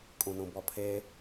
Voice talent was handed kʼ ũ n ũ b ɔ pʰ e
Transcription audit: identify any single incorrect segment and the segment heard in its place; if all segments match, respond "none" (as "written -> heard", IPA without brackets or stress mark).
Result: none